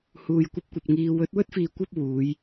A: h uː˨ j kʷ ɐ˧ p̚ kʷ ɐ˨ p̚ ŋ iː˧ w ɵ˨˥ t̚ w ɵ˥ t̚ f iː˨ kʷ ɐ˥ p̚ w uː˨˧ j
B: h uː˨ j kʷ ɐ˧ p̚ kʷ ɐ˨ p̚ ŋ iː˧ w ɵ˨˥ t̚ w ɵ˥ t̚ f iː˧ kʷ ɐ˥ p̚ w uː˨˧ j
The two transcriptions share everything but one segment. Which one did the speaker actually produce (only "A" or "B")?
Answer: A